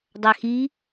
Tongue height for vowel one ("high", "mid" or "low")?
low